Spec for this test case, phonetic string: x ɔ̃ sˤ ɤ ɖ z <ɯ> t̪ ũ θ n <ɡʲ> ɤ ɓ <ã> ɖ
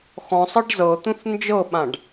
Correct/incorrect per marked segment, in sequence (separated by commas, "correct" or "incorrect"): incorrect, incorrect, correct